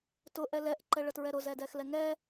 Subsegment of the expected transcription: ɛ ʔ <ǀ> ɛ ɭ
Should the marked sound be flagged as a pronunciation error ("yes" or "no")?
yes